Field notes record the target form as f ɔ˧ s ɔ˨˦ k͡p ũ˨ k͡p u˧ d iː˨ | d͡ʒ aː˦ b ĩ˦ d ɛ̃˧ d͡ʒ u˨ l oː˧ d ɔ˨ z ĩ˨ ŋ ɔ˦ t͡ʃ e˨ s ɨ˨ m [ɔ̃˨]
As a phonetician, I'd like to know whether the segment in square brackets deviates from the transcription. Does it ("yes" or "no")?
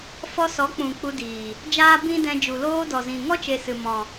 no